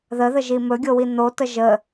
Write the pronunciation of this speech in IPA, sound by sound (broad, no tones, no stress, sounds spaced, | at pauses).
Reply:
ð ə ð ə ʒ i m ɵ ɡʲ o w i n̪ o t ə ʒ ə